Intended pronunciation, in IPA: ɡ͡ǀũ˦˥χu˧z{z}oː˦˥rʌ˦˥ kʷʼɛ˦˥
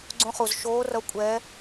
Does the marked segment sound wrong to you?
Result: yes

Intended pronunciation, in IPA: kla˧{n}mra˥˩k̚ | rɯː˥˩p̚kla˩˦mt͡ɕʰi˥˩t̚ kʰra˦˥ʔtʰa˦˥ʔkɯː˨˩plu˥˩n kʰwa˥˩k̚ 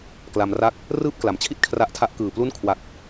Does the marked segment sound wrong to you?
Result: yes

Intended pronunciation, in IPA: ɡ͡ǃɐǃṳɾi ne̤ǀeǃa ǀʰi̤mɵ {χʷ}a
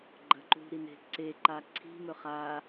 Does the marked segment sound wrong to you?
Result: yes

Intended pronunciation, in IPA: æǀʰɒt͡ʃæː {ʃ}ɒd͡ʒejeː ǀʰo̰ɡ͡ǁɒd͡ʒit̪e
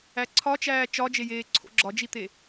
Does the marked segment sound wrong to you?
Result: yes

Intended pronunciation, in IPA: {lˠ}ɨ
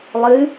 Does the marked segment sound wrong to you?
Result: no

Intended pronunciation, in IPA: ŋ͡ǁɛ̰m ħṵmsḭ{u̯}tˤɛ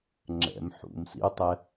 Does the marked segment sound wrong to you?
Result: no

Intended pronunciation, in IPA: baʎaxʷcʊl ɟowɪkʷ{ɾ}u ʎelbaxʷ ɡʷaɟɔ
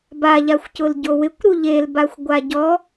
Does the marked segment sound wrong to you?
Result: no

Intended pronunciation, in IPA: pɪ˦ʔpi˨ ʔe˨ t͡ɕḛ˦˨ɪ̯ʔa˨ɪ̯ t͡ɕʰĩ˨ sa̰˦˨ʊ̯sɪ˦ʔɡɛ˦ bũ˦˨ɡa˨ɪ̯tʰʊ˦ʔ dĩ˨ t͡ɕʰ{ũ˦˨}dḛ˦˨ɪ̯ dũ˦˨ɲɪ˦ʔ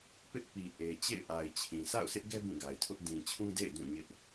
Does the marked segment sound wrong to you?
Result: yes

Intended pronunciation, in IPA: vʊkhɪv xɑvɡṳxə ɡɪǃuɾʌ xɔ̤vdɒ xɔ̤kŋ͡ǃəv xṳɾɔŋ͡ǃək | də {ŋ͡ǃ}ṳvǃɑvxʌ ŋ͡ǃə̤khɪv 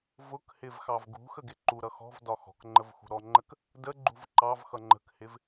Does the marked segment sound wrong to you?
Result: yes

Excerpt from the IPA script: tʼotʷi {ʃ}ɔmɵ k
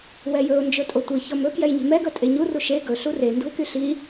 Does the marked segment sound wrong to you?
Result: yes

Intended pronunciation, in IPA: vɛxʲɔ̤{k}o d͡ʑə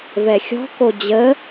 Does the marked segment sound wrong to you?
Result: no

